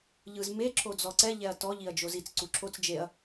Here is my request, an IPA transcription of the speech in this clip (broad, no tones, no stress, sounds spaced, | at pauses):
ʎ ɯ z m e ǁʰ o d͡z ɔ ǀ ɛ ʎ ɛ ɐ̯ t ɔ ʎ i ɐ̯ d͡ʒ o z i t͡s ǀ u ǁʰ o t͡s d͡ʒ e ɐ̯